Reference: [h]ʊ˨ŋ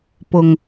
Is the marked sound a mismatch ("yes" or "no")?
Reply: yes